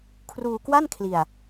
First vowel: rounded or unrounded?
rounded